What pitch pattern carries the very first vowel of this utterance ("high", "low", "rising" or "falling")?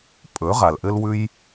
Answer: rising